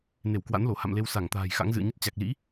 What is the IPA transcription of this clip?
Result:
ne˧˩wkwa̰˧˥nlo˧˩ ha̰˧˨mle˧w sa˧˩ŋt̪a̤ː˨˩j xa̰˧˥ŋzɨ̰˧˨ə̯ɲə˦˥t̚ t͡ɕa˨˩k̚lḭ˧˥

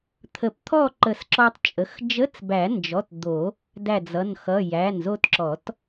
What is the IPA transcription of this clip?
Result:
t̪ʰə˨˩˦pt̪ʰɔ˥˨ ǃə˨˩˦sǁɔ˧tˤt͡ʃʼə˩˧˩x d͡ʒə˧˥˧t͡sbæ˨˩˦nd͡ʒɔ˩˧˩t d̪o˨˩˦ | dæ˧˩d͡zʌ˩˧˩nxʌ˩˧˩ jæ˩˧˩nzo˧tǁɔ˨˩˦t

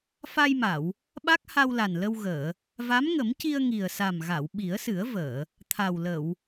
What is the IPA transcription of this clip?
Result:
fa˧jma˨˩˨w | ɓa˦˥k̚ha˧wla˨˩n lə˧wɣəː˨˩˨ | va˧˥mŋə˨˩˦mci˧ə̯ ŋi˨˩ə̯sa˨˩mɣa˨˩˨w ɓi˨˩˦ə̯sɨ˨˩˦ə̯vəː˨˩˨ | t̪ʰa˨˩wlə˨˩˨w

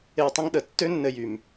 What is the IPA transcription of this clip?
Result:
e˦wtˤə̃˥ŋɗə˩ tːø˦nːɘ˨ jy˩m

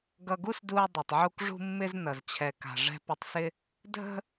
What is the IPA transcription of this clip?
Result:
ɡʌ˧ɡu˥sdu˧ɐ̯ dˤø˩tˤʕu˧k ʐṳ˥mːɪ˥znʌ˩z t͡ɕʰɛ˩ka̤˩ ʐɛ̤˧pɪ˧tˤsɪ˥ | dʱə̤˥

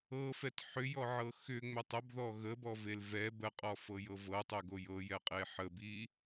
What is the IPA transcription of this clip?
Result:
ɤfɛt ħʏjɔʕɤ xʏ ŋ͡mʏtˤəbðɔ ɣəbɔvel vɛ bəqʼɔfɤ jɤvɤtˤøɡo jɤjɛqʼe ħəbi

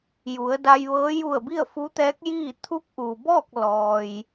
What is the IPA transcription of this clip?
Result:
ju˩˧ə̯da˧jʋɤː˧˥ ju˧˩ə̯ bi˥˨ə̯fu˧˥t̪ɛː˧˥k̚ jiː˥˨ t̪ʰu˧˥k̚ʔu˩bɔː˥˨k̚ lɔː˩j

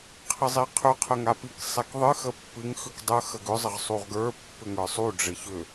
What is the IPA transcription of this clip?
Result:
qʰɘzˤiqʰʏ qʰəŋapik sˤɛkðˤɨ xəpːɨŋ xʏkdˤə xəɡʏ zˤəʁsˤuʁɡə˞ pːʏŋə˞sˤu ɖ͡ʐɘçʏ

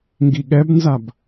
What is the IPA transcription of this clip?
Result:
ŋɡiɠɛbnzab

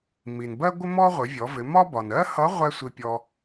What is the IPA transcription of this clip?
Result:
mi˩nbɜ˥ɡʷɪ˥mɔ˥ ʁʷɪ˩˧vʲɔ˩˧vɪ˩˧ mɒ˥ bɒ˩nɜ˥hʌ˧˥ ʁʷɛ˥sʷi˧pʲɔ˧

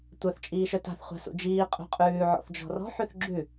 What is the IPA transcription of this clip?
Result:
tʷœθ t͡ʃʼiːʃœta̤θ χʷa̤sṵd͡ʒiː qʼṳqʼʉː ʕɔ̰θd͡ʒɔ̤rɔ̤ ħʉθɡ͡ǁʉ

